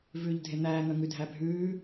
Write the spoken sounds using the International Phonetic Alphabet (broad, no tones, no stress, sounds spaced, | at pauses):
v ʉː ʎ dʱ e n̪ æː ŋ œ ŋ ʉ dʱ æ bʱ ʉː